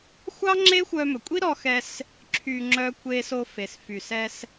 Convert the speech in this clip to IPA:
xʷ ɑ˥ ŋ͡ǁ e˥ xʷ œ˧ m ɵ˩ kʷʼ i˥ ɾ ɔ˧ x ɛ˧ s | ǁʰ y˧ ŋ͡ǁ œ˧ kʷ e˧ s o˧ f e˩ s f y˩ s ɛ˧ s

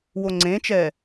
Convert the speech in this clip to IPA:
w o ŋ͡ǀ ẽː t͡ʃ ɛː

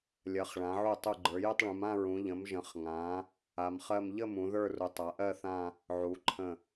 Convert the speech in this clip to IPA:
lʲ ɜ˩˧ χ ɭ ã˩˧ ʕ u˧˩ tˤ u˧˩ ɡ͡ǃ ə˞˩˧ j ə˥˧ tˤ ɭ ũ˩˧ m ã˥˧ ɹ ũ˩˧ ʎ ə̃˩˧ m ʒ ə̃˩˧ χ ŋ ã˩˧ | a˩˧ m χ ɜ˥˧ m ʎ ə˥˧ m ũ˩˧ ð ə˞˥˧ r u˩˧ tˤ a˩˧ ʔ ɜ˥˧ θ ã˥˧ | ʕ u˩˧ ǃʰ ə̃˧˩

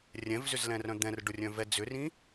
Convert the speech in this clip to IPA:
rʲ ɛ̃ v z ʏ z l ɛ̃ r œ̃ d̪ ɛ̃ r ɖ ʊ rʲ œ̃ v ɛ d͡z ʏ r ĩ

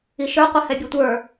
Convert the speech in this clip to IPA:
i ʃ ə˞ qʷ ɛ h ɛ bʲ e tʷ ə˞

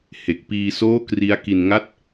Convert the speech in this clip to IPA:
h e˨˩ k̚ p iː˧ s oː˥˩ k r i˦˥ a̯ k i˧ n ŋ a˥˩ t̚

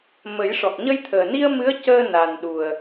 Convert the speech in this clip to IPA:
m ə˨˩˦ j ʂ ɔ˨˩ k̚ ɲ ə˧ j t̪ʰ əː˨˩ n i˧ ə̯ m ɨ˧˥ ə̯ c əː˧ n a˨˩ n ɗ u˨˩ ə̯

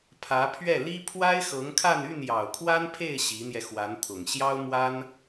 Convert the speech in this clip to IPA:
pʰ ä˧˥ pʰ ɥ ɛ˥˩ l i˥ pʰ w a˥ ɪ̯ x ɤ˧˥ ŋ kʰ a˥˧ n y˥˩ n j ɑ˨˩ ʊ̯ kʰ w a˥ n pʰ e˥˩ ɪ̯ ɕ i˧˥ n̪ j ɛ˧ x w a˧˥ n t̪ʰ ʊ˨˩ ŋ ɕ j ɑ˥ ʊ̯ m w a˥ n

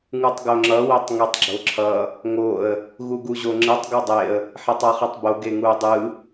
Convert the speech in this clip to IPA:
ŋ u tˤ ɡ o ŋ͡ǁ ʌ w e tˤ ŋ e tˤ ɡ͡ǁ o ǁʰ ʌ | ŋ o ə̯ | ɣ u ɡ u ʑ o ŋ͡ǁ ɯ tˤ ɡ u dˤ e ə̯ | ħ e tˤ a χ ɯ tˤ b o ɡ e ŋ u ə̯ dˤ ɯ

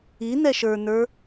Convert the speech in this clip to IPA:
i n ɛ ʃ ə˞ n ə˞

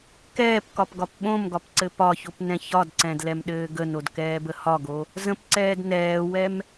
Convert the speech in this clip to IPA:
k ɛː p k ɒ p ɡ ɒ p ɓ õ m ɡ ɒ p ǀ ɘ p ɒ ç o p n ɛ̃ ç ɒ d ǀ ɛ̃ d l ɛ m ɗ ɘː ɡ ə n o d k ɛː b ə h ɒ ɡ o | z ə̃ p ǀ ɛː d n ɛː w ɛ m

